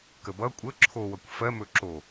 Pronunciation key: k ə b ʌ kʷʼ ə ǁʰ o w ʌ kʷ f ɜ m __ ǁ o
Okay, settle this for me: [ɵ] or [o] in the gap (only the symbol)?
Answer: ɵ